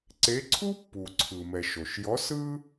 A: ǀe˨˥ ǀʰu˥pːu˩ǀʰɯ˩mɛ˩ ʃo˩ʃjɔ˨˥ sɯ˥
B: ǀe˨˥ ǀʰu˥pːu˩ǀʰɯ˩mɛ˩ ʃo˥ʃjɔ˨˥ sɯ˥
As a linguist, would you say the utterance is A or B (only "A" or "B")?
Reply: A